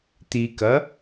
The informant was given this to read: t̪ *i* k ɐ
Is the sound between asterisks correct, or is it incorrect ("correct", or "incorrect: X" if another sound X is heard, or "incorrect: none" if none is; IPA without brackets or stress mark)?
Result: correct